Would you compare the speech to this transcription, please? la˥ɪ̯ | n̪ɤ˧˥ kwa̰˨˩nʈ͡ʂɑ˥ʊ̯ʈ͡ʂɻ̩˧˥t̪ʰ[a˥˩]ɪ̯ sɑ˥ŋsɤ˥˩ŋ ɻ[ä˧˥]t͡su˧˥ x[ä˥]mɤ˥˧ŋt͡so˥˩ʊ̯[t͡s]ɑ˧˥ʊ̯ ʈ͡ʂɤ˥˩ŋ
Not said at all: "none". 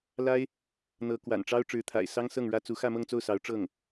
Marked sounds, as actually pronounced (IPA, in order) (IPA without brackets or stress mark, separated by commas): a̰˨˩, ä˥, ä˥˧, s